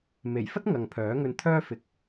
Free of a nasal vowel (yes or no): yes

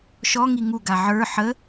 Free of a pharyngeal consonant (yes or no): no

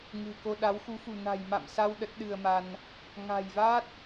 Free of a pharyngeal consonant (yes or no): yes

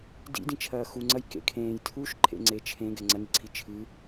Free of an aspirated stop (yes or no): no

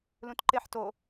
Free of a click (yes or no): no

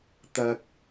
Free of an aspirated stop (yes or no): yes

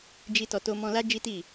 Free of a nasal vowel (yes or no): no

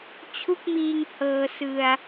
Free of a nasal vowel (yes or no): yes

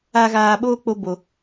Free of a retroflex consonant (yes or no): yes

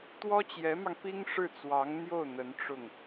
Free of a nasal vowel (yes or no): yes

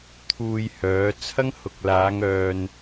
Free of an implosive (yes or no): yes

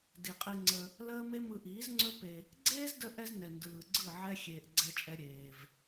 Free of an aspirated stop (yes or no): yes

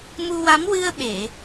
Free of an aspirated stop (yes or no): yes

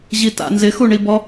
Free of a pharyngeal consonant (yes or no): yes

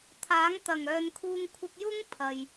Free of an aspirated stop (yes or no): no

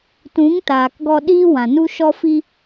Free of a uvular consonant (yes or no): yes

